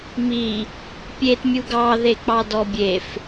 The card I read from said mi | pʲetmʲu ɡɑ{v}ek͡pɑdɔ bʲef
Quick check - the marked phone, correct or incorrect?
incorrect